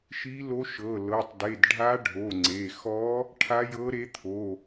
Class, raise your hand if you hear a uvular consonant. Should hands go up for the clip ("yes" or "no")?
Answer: no